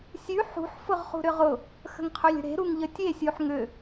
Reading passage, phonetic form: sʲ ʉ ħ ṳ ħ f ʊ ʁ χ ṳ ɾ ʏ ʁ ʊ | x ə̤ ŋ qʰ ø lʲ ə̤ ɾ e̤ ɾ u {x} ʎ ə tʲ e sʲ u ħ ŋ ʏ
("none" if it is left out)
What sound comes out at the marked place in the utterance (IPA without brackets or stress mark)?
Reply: ŋ